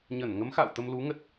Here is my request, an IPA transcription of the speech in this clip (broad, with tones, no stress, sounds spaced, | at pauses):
ɲ ə˧˩ n ŋ ə˨˦ m x a̰˧˨ w t̪ ə˧ m l u˨˦ ŋ ə˦˥ t̚